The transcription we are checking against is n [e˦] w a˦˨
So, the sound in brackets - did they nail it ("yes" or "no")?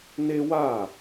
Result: yes